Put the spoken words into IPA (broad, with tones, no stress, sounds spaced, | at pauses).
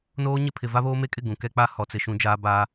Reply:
n oː˦ ɲ ɪ˦ pʰ ɪ˨ v a˦ β oː˦ m e˦ kʼ ɪ˦˨ ɡ ũ˨ k ɛ˦ k͡p a˦ h ɔ˦ t͡s ɪ˦ ʃ ũ˦ d͡ʒ aː˦ b a˦